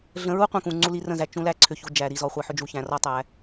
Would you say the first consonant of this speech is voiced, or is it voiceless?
voiced